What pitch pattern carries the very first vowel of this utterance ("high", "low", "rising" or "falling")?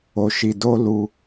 low